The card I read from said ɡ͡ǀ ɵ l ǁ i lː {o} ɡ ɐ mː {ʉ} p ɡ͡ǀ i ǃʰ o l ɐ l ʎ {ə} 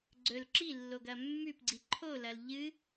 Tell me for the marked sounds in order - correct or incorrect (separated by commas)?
correct, correct, incorrect